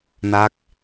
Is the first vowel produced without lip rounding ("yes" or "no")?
yes